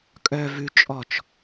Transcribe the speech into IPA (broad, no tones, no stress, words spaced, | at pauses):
kʼœ vʉ t͡ʃʼɔt͡ʃ